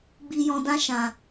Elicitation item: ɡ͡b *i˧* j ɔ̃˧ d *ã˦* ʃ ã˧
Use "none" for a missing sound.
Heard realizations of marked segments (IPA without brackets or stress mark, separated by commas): i˧, ã˦